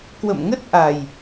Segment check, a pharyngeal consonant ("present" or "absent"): absent